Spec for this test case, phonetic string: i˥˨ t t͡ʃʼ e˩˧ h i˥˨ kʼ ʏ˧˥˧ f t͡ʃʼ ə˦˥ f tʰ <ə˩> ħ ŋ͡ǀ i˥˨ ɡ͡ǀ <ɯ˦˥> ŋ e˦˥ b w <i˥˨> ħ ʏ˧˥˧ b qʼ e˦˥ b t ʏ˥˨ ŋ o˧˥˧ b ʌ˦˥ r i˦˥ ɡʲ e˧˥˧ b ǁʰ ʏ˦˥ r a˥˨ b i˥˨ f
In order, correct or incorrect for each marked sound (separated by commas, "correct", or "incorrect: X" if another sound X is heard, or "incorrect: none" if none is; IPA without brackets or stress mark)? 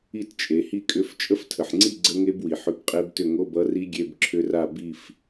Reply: correct, incorrect: ə˦˥, incorrect: i˩